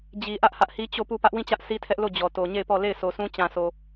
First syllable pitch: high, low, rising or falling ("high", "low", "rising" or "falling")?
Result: low